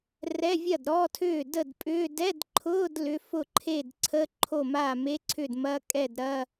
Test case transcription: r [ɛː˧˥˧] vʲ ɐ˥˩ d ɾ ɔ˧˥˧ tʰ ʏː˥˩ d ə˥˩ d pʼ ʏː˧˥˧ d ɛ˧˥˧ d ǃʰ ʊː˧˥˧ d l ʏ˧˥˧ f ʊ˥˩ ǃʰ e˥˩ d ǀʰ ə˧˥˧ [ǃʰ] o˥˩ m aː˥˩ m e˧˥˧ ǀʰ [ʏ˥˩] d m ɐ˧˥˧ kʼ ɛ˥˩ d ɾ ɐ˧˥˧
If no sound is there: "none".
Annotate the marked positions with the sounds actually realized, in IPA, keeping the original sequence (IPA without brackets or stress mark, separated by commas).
ɛ˧˥˧, ǃʰ, ʏ˥˩